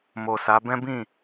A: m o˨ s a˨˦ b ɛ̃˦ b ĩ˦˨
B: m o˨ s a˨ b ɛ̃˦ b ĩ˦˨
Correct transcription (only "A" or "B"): A